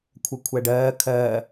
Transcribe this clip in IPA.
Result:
kʷʰ ɜ kʷʰ æ ɖ ɜː kʰ ɜː

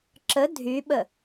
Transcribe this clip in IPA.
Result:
ǁ ə dʱ y ɓ ə

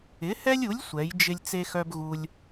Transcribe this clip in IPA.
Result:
ɪ˨˥ h ɛ˥ lʲ u˨˥ lʲ sʷ ɛ˨˥ j d͡ʒ ɪ˥ lʲ t͡s e˥ x œ˥ b ɣ u˥ lʲ

